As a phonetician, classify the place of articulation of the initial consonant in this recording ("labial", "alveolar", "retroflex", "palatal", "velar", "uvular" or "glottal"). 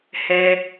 glottal